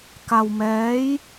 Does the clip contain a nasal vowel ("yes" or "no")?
no